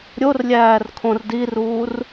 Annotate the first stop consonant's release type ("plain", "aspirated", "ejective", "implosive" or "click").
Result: aspirated